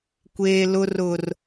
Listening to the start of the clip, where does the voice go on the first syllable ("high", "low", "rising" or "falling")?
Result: high